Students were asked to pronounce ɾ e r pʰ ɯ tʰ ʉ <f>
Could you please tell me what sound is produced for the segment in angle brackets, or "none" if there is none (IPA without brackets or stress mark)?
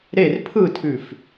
f